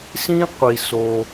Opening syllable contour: high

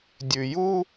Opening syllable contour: low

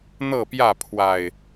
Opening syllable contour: falling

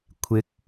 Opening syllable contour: rising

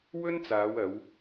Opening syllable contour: high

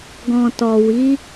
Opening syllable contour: low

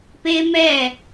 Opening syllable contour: high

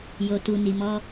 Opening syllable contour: low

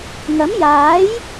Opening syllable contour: rising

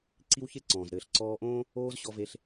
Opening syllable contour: high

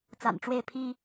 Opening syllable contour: low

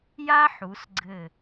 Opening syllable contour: high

